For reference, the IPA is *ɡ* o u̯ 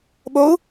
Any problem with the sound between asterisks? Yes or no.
yes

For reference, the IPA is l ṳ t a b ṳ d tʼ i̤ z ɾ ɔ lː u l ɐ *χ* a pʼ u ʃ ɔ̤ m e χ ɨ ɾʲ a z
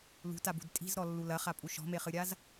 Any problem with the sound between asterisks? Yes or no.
no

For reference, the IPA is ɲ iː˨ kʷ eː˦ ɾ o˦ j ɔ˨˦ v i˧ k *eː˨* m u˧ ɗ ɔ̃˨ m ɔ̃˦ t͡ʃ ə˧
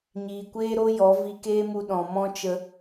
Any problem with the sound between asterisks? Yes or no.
yes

